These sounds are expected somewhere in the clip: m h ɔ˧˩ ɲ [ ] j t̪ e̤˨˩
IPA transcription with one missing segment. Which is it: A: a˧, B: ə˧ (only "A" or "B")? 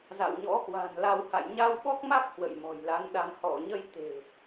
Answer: B